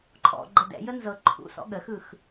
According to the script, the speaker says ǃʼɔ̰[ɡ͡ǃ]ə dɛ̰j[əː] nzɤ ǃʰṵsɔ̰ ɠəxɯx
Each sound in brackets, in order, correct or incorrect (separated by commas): correct, incorrect